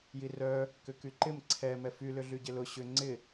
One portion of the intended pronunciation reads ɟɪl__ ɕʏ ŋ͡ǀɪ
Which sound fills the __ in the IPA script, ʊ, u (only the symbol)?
ʊ